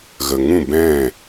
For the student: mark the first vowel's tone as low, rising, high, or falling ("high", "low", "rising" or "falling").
low